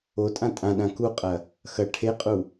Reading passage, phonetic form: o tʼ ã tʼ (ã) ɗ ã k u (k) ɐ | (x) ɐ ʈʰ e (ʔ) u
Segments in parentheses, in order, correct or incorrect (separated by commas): correct, incorrect, correct, incorrect